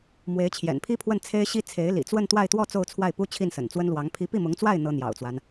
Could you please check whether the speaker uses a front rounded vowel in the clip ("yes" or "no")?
no